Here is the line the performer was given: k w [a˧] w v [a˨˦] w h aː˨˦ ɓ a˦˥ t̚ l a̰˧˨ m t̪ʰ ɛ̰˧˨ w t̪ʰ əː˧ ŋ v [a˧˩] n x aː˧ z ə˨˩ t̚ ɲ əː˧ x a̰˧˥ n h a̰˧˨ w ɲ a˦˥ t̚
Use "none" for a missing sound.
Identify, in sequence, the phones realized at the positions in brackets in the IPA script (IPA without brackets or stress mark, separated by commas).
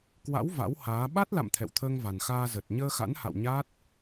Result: a̰˧˥, a̰˧˥, a˨˩